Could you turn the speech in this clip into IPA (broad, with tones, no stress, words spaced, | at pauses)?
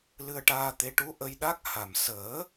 lɨ˧ə̯ʈaː˧t̪e˧˥ ʈu˧˥ ʔə˧jɗa˦˥k̚ ha˨˩m səː˨˩˦